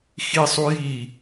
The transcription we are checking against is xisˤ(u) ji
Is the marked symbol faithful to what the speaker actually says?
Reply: yes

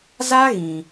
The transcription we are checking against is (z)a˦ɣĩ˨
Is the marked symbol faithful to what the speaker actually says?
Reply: yes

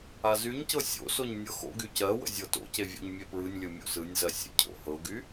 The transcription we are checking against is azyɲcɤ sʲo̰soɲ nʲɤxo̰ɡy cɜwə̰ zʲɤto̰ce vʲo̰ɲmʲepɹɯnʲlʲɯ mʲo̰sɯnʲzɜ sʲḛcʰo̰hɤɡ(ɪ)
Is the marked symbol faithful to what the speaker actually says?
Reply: no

